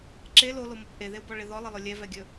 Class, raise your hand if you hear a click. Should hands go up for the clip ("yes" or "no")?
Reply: yes